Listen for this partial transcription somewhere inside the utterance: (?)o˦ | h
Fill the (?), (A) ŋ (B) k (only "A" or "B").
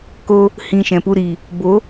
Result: B